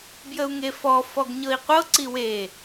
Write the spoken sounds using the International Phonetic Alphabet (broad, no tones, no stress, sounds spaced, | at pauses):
b j ə u̯ ŋ e f ɔ f ɔ ɡ ɲ ɤ i̯ qʷ ɤ ǀ i w e